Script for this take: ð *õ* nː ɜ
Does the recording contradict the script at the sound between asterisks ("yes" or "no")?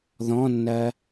yes